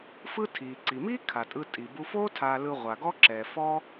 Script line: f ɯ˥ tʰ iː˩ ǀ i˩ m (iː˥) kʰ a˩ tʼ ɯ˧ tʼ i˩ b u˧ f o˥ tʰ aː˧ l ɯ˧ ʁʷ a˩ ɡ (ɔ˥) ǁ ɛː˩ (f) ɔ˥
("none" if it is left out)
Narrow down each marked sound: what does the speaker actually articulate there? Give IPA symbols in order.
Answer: iː˥, ɔ˥, f

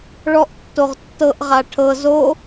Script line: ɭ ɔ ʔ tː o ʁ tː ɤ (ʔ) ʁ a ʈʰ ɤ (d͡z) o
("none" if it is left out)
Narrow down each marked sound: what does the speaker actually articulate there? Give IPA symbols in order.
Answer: ʔ, z

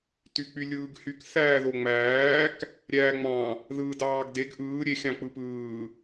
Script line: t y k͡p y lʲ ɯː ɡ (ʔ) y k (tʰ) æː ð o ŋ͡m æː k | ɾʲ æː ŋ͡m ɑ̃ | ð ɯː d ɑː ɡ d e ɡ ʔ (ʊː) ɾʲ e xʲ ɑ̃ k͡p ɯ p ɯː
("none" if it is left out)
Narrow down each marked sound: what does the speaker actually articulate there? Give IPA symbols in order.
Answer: h, θ, ɯː

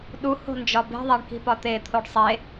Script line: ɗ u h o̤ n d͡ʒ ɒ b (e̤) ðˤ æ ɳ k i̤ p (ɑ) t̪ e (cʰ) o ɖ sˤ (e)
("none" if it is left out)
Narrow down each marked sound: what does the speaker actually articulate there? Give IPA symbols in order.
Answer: e̤, ɒ, t̪ʰ, e

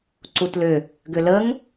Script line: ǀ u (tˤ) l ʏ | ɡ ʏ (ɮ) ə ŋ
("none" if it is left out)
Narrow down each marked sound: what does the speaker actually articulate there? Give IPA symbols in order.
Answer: t, l

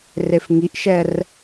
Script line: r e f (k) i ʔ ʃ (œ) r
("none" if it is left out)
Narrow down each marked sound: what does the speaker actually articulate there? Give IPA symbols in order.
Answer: ŋ, ɛ

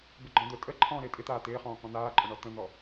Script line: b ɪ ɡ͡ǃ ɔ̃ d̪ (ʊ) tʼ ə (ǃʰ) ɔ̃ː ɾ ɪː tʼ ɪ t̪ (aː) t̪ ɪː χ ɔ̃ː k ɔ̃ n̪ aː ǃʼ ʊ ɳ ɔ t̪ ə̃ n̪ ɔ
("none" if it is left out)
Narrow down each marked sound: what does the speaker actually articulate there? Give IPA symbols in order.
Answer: ʊ, ǃʰ, aː

